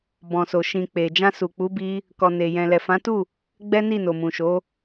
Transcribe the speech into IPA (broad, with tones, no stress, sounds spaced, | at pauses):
b ɔ̃˨ s o˨ ʃ ĩ˨ k͡p e˨ d͡ʒ ã˧ s u˨ k͡p u˨˦ b i˧ | k ɔ˨ n e˨ j ɛ̃˨ l ɛ˨ f ã˨˦ t u˦˨ | ɡ͡b ɛ˦ n i˦˨ n o˨ m ũ˨ ʃ o˨˦